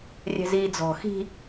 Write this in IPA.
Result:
rʲɛ̤ziːd͡zɔ̤ xi̤

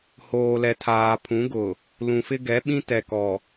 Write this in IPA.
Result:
hoː˨lɛ˨ tʰaː˨pʰũ˨˦ɡʊ˨ | lũ˨fɪ˦ɡɛ˨˦ɓĩ˦ tɛ˨kɔ˨

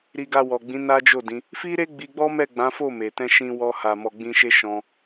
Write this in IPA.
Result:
ɾi˧ɡa˧wɔ˨ɡ͡bĩ˨˦ na˦d͡ʒo˦˨dĩ˨˦ | fi˦ɾe˦ ɡ͡bi˧ɡ͡bɔ˦mɛ˦˨ɡ͡bã˨˦ fo˦˨ me˨ tɛ̃˧ʃĩ˧wɔ˧ ha˨mɔ˨ɡ͡bĩ˧ʃe˦ ʃɔ̃˧

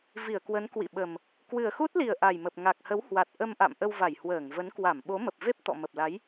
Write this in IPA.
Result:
vi˧˩ə̯kwə˨˦n kwḭ˧˨ɓə˨˩m | kwɨ˨˩ə̯xu˦˥t̚li˨˩ə̯ ʔa˨˩jmə˨˩p̚ ŋa˨˩k̚hə˨˦whwa˨˩t̚ ʔə˧mʔa̰˧˨m ʔə˧wva˧˩jhwəː˧˩ŋvə˨˦n kwa˧˩mɓo˨˦mə˨˩p̚ve˦˥p̚ t̪ɔ̰˧˨mə˨˩p̚la˨˦j

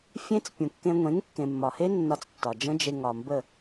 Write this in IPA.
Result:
fʲẽ˦t͡s pʲũ˨kːẽ˧ ŋʷẽ˨˦ŋkːẽ˨mːɒ˨he˦ nːɒ˧t͡stːɒ˨d͡ʒə̃˦d͡ʒe˧ ŋɒ˨mbə˦˨

